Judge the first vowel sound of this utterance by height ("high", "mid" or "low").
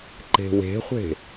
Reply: mid